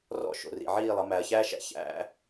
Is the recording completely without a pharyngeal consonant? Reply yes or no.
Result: no